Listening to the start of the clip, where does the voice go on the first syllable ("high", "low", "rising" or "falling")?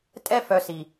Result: high